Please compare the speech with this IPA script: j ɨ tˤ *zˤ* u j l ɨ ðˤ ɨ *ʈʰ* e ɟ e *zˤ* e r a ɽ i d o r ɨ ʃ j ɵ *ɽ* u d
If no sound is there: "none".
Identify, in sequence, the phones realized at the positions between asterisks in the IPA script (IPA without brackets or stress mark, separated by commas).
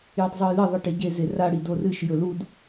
zˤ, ʈ, z, l